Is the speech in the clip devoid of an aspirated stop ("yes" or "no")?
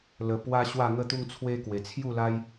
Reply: no